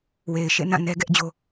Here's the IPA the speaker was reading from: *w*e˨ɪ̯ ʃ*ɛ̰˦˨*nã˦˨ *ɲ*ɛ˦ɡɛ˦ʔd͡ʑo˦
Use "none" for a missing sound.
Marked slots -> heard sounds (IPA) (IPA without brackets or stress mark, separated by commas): w, ḛ˦˨, n